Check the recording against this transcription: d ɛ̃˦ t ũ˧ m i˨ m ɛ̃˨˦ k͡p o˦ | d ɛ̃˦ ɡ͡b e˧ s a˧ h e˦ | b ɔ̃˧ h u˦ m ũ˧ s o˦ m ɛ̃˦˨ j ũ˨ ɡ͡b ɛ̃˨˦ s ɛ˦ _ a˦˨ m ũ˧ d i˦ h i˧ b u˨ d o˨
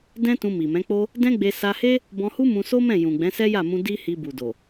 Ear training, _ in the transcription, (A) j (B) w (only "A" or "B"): A